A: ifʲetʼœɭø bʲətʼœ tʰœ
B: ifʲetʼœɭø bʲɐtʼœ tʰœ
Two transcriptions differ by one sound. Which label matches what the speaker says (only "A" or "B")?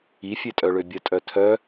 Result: A